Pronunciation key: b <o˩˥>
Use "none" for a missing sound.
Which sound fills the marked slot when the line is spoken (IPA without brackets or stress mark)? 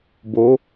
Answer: o˩˥